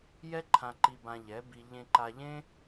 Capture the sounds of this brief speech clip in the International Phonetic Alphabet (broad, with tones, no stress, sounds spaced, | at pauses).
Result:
j ɛ˦ ǃʰ ã˧ ǃ i˧ b ã˧ ʎ ɛ˨˦ b i˧ ʎ ẽ˧ ǃ a˧ ʎ ẽ˦